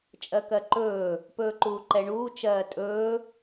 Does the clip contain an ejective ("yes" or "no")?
yes